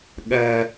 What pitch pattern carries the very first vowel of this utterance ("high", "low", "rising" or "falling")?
high